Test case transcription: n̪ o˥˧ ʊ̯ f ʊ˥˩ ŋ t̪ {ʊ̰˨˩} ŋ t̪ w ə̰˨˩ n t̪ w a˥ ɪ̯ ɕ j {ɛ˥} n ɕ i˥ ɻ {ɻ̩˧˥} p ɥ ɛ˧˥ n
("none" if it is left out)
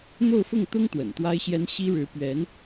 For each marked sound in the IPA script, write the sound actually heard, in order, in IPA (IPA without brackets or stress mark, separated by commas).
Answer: ʊ˥, ɛ˥, ɻ̩˧˥